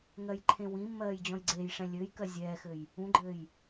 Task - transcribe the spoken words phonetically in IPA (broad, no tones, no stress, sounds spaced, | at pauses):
ŋ ɜ j ǃʰ ẽ w ĩ mː ɜː j d͡ʑ ɔ̃ j ɡ͡ǀ eː j ʂ ɛ̃ lʲ ɘː j k ɜ zʲ ɛː x ɘ j | ũ ɡ͡ǃ ɘː j